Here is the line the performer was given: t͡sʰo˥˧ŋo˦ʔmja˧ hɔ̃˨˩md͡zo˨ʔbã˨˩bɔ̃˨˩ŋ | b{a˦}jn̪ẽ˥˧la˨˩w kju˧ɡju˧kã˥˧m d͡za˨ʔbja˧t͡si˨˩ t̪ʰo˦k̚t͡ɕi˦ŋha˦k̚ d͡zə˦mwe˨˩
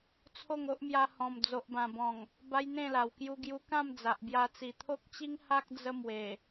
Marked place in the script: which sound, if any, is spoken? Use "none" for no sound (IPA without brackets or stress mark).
a˦